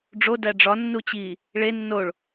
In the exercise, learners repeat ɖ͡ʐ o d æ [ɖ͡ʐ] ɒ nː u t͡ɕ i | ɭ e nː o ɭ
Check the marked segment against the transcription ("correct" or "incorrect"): correct